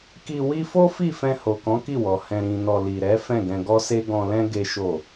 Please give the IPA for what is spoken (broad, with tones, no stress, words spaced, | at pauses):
ki˧ wi˦ fo˦fi˦˨fɛ̃˧ ho˨kɔ̃˨˦ ki˦˨wɔ˨ hɛ̃˨ɾĩ˨ nɔ˧ li˨ɾɛ˨˦ fɛ̃˦˨ɡɛ̃˧ɡɔ˦se˦ ɡɔ̃˧lɛ̃˦ ɡe˦ʃo˦˨